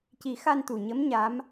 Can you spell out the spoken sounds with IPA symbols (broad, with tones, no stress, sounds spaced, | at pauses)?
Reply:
c i˨˩˦ x a˧ n t̪ u˨˩ ɲ ə˧˥ m ɲ a˧˥ m